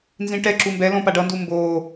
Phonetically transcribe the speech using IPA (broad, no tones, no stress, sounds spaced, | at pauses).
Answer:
n z ĩ ʈ ɛ ǁ u m b ɛ l õ p a ɖ ʌ n d u m b o